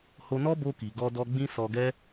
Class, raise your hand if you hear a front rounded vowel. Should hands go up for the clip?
no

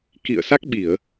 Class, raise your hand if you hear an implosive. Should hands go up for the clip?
yes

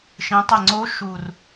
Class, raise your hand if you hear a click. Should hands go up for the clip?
yes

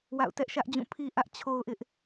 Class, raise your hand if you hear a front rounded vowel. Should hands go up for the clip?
no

